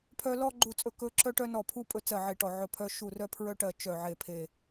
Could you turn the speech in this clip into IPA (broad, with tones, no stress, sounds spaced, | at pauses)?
pʰ œ˥ l ɔ˥ ɡ͡ǃ u˦˨ t͡sʼ ɵ˦˨ k ɵ˥ ǁ œ˥ ʈ œ˥ n ɔ˦˨ pʰ u˥ pʼ ɵ˥ t͡s ɜ˦˨ ʕ e˦˨ ʈ ɔ˦˨ ʕ ɵ˦˨ pʰ œ˥ ʃ u˦˨ r œ˥ pʰ ɹ œ˥ ʈ ɜ˦˨ t͡ʃ œ˦˨ ʕ e˦˨ pʰ e˦˨